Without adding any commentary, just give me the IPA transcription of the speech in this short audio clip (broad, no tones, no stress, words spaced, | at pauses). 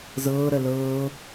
zɤː ɾɜlɤː